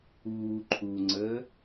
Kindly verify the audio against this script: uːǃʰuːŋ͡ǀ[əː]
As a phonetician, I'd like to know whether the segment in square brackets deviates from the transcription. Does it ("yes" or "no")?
no